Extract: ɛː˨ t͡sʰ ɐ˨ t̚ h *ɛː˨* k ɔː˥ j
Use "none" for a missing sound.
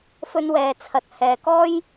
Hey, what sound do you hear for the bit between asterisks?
ɛː˨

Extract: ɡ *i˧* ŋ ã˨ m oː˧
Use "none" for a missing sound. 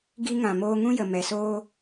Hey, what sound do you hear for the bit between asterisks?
i˧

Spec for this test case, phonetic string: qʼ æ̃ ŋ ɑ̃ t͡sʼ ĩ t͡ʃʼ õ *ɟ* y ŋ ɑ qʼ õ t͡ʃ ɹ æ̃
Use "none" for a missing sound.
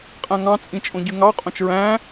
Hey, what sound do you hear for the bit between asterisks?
ɟ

